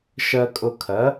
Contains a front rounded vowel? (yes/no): no